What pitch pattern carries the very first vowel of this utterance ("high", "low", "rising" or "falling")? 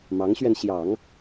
rising